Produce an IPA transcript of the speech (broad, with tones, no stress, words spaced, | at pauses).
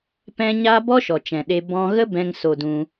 pɛ̃˦ɲa˦ bɔ˦ʃɔ˨t͡ʃɛ̃˨ ɗe˧ bɔ̃˧ɣə˦bɛ̃˧ŋ so˧dũ˧